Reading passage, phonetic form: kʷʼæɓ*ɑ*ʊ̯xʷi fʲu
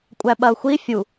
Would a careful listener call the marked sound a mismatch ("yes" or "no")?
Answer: yes